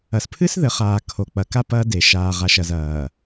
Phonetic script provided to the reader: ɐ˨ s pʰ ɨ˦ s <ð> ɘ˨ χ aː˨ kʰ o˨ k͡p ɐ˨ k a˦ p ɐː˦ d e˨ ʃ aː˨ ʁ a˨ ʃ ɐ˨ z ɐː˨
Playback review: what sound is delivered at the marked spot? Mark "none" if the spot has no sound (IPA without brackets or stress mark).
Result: ð